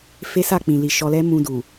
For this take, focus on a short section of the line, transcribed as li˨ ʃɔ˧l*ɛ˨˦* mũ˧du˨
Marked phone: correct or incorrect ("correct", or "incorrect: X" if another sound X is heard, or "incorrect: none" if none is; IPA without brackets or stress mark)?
incorrect: ɛ˦